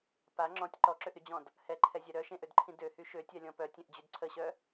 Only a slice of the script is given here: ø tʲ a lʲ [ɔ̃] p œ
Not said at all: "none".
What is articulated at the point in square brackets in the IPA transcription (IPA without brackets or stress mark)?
ɔ̃